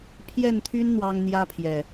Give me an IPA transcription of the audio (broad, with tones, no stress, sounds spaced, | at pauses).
pʰ j ɛ˥˨ n t̪ʰ y˦ n n̪ w ɑ˦ ŋ n̪ j ä˦ pʰ j ɛ˨˩